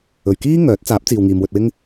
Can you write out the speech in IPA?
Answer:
ɵ˨ɥkiː˥ ŋœː˨˥t̚t͡saː˨˥p̚ t͡siː˨wŋiː˨mwɵ˧t̚wɪ˥ŋ

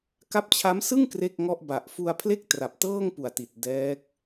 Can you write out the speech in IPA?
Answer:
ka˦˥p̚t͡ɕʰa˦˥msɯ˥˩ŋ kre˥˩k̚ŋɔ˥˩ʔba˨˩ʔ fu˧a̯pʰle˥˩k̚ tra˨˩p̚tɤː˥˩ŋpu˨˩a̯ ti˨˩t̚dɛː˦˥k̚

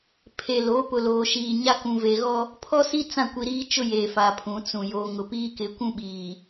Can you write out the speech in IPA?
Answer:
pʰe˨lo˨˦ pʊ˨loː˨ʃiː˨ɲa˦ kũ˨ve˨ɣɔ˦ | pʰɔ˦si˦ t͡sã˦˨kʷi˨ɾiː˦t͡ʃʊ˦ je˨fa˨pʰũ˨˦t͡sũ˨ jo˨ŋʊ˨ piː˦kɪ˨˦kʷũ˦ɓiː˨

